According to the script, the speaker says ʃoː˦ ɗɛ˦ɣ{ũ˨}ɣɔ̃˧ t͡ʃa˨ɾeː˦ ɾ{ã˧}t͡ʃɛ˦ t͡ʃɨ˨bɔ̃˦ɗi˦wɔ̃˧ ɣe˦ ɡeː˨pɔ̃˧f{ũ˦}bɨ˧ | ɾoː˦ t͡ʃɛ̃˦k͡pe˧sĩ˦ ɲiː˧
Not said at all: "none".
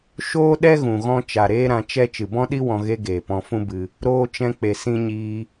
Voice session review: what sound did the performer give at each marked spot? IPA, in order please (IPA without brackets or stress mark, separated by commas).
ũ˨, ã˧, ũ˦